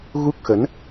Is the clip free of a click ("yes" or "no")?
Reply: yes